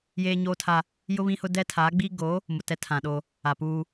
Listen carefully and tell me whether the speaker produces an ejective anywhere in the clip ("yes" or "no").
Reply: no